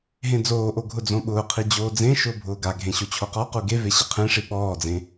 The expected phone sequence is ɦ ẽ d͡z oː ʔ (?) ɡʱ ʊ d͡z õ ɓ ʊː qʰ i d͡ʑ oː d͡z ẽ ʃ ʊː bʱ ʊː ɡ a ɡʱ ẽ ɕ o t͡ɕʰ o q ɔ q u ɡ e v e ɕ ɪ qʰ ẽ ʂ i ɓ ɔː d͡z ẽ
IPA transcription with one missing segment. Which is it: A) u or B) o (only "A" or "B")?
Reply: B